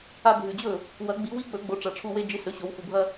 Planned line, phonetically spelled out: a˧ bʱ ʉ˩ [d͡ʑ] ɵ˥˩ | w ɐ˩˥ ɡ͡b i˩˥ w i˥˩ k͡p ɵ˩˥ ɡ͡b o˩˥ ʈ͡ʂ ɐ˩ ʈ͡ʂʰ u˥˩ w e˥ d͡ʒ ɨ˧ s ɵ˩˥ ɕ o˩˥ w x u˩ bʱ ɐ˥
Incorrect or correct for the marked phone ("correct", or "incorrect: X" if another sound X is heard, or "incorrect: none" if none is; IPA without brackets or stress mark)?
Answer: correct